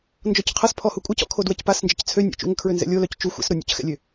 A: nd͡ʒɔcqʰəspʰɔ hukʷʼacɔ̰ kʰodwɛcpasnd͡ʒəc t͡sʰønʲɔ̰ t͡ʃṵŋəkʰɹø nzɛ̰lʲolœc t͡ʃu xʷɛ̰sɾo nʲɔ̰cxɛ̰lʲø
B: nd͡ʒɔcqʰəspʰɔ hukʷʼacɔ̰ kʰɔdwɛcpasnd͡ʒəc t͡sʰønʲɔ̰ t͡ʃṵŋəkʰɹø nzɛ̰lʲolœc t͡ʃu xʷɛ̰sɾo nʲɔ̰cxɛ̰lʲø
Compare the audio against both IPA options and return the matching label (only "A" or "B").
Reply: A